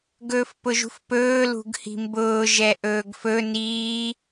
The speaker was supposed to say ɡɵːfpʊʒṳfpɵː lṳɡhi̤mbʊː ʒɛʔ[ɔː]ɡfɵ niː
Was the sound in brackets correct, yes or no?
no